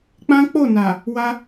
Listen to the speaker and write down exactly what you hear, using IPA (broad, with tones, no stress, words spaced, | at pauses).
k͡pã˦k͡po˦˨na˨ | wa˧